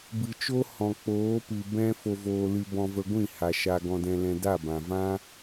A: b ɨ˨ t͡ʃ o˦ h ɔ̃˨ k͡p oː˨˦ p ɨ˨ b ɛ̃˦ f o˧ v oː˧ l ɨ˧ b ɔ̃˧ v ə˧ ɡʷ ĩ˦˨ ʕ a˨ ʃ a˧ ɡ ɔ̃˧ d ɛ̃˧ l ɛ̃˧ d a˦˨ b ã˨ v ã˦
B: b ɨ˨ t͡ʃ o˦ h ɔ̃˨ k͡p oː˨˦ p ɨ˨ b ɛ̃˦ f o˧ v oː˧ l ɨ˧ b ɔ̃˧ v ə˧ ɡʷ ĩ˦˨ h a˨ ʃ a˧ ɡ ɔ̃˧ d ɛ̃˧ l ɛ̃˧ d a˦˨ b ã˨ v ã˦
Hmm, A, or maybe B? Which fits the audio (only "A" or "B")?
B